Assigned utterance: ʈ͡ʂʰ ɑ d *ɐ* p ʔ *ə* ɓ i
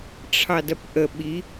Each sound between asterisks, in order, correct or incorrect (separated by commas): correct, correct